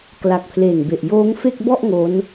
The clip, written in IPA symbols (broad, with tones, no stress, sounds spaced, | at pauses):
k l a˨˩ k̚ pʰ l eː˨˩ ŋ b e˨˩ ʔ j oː˦˥ ŋ f e˥˩ k̚ b ɔ˥˩ ʔ ŋ o˦˥ n